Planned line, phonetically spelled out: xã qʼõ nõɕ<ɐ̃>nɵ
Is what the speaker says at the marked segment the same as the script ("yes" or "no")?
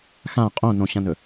yes